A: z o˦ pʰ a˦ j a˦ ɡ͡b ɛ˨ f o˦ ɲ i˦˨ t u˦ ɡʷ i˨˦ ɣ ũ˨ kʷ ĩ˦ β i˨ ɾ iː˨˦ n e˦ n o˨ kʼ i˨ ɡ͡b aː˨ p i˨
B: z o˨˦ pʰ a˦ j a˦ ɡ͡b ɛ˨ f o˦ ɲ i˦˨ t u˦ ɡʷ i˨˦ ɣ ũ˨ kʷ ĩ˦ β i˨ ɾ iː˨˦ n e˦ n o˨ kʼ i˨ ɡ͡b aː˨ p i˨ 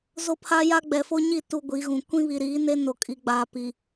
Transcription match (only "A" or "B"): A